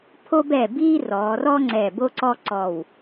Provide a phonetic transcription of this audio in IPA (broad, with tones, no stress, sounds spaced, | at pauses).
pʰ o˦ b ɛ˧˩ b iː˦ r ɔː˩˧ r ɔ˦ ŋ͡ǀ ɛ˧˩ b o˦ ǀ ɔ˦ ǀ ɔ˧˩ w